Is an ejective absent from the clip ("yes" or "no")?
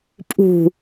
no